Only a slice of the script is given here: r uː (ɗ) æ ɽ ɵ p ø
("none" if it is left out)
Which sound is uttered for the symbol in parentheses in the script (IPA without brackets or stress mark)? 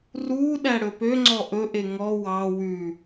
ɗ